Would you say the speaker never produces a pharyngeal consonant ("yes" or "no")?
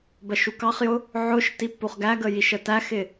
no